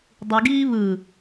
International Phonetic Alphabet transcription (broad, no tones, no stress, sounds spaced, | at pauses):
dˤ ɯ ɡ iː β ɯ